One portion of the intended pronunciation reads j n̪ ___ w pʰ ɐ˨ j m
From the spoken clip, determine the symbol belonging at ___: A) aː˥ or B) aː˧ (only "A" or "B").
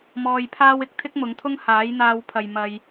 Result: B